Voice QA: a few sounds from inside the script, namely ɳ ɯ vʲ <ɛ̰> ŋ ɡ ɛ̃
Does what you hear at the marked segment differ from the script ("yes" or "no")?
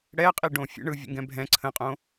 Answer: yes